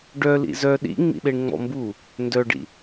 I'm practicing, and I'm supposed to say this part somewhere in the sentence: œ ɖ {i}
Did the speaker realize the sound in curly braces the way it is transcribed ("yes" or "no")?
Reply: no